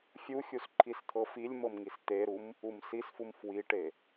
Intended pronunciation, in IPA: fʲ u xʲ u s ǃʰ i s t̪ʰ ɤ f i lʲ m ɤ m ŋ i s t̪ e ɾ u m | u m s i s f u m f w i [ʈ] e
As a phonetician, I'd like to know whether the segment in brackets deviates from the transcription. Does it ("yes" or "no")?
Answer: no